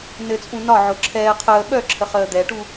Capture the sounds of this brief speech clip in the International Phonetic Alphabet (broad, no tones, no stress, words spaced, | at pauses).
nɘt͡sʼũ nɒʕʊ ǁʰɛː qʰəː ɓœǁʰəχəː d̪ɛʈu